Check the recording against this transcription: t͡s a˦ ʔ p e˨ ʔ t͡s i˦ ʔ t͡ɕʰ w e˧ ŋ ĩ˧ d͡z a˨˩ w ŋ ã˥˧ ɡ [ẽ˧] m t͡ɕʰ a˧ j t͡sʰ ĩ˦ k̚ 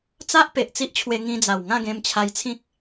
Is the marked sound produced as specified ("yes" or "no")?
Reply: yes